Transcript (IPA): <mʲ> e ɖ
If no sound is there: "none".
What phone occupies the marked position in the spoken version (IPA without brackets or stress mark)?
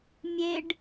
mʲ